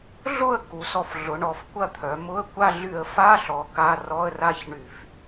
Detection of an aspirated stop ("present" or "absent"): present